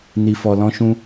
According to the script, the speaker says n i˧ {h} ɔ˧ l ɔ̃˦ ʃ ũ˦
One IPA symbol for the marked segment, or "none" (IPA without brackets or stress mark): f